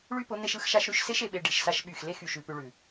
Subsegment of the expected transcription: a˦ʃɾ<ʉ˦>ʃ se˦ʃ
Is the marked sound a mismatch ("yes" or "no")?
no